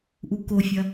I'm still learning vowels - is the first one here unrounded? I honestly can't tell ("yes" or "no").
no